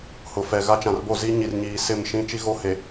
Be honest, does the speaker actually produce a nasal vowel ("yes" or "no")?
yes